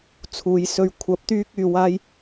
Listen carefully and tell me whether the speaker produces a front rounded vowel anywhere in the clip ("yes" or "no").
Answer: yes